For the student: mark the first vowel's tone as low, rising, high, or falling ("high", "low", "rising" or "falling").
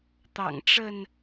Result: low